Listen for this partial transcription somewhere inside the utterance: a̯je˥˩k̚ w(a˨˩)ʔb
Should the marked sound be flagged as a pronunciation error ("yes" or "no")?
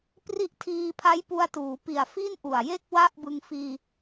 yes